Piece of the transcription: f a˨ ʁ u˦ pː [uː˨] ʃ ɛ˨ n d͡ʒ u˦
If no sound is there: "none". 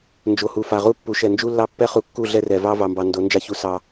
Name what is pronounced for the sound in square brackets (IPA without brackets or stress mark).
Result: u˨